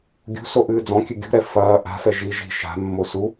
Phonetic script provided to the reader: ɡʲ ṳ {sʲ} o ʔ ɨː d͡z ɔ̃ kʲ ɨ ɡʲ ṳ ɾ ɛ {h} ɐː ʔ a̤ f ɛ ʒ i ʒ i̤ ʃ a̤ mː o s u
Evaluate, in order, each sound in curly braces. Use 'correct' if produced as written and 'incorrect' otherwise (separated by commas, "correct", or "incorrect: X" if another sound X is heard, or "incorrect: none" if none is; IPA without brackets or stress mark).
incorrect: s, incorrect: f